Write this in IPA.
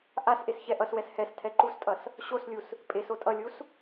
ʔasʔes çɛʔʌswɛs hɛs tʰɛǃustʼʌs | ɕoslʲus | pʼes otʼʌlʲus

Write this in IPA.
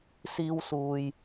siː˥wsuː˧j

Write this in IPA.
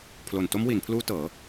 pʰlo˨˩nto˦˥mwi˩˦npʰluː˦˥ tɤː˩˦

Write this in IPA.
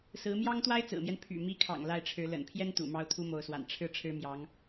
sɹ̩˧˥mjɑ˥ŋt̪wa˥ɪ̯ t͡sɹ̩˨˩mjɛ˦n pʰy̰˨˩mi˧˥kʰɑ̰˨˩ŋ la˥˩ɪ̯ʈ͡ʂʰɻ̩˧˥ lə̰˨˩npʰjɛ˥n t̪ṵ˨˩mɑ˥ʊ̯ t̪ʰu˥mo˧˥ʊ̯swa̰˨˩n ʈ͡ʂʰɻ̩˥˩ ʈ͡ʂʰɻ̩˥mjɑ˧˥ŋ

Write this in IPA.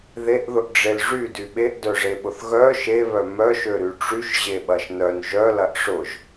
ðeʔðʊʔɖ͡ʐel ʐydy ɓeʔdœʐeɓʊθ ɣœ ʃeβœ mœʃøɾy ʈ͡ʂyʃʑeɓɐʃ nœn ʒœlɐʔ ʂʊʒ

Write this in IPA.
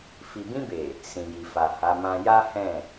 fi˨bĩ˧be˨ | sĩ˨ji˨fa˨ ha˨˦mã˦ ja˦hɛ̃˦˨

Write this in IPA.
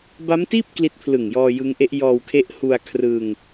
ba˦˥mtiː˥˩p̚ kli˦˥t̚pʰlɯ˨˩ŋjɔː˧ jɯ˦˥ŋʔe˦˥ʔ jɔː˧wkʰe˦˥ʔhu˧a̯ kʰrɯ˧ŋ

